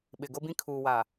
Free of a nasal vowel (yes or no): no